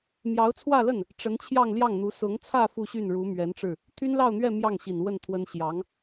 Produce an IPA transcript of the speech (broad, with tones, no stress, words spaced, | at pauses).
mjɑ˧˥ʊ̯ t͡sʰwä˥˧lə˥˩n | ʈ͡ʂə˧˥nt͡ɕʰjɑ˥˧ŋ ljɑ˥˩ŋn̪u˧˥ sʊ˧˥ŋt͡sʰä˥˧ fu˥˧ɕy˥˩n ɻu˧˥mɥɛ˧˥nʈ͡ʂɻ̩˥˩ | t̪ʰy˥nlɑ˥˧ʊ̯n̪ɥɛ˥˧ mjɑ˥˩ŋɕi˨˩nwə˥˩n t̪ʰwə˥n ɕjɑ˧˥ŋ